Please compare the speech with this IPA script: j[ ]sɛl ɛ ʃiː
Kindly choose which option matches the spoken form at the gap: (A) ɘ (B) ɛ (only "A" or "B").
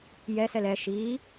B